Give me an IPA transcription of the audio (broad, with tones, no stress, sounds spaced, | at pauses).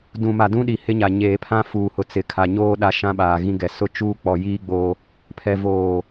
d ũ˨ m a˨ d ũ˦ ɗ i˨ h ɪ˦ ɲ a˨ ɲ eː˨ pʰ ã˦ f uː˨ h ʊ˨ t͡s ɪ˨˦ kʰ a˨ ɲ oː˦ ɗ a˦ ʃ ã˦ ɓ aː˨ ɣ ĩ˦ ɡ ɛ˨ s ʊ˦ t͡ʃ uː˦ k͡p ɔ˨ j iː˦ ɡ͡b o˦ | pʰ ɛ˨ v oː˨